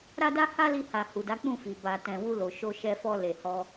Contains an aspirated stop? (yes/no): no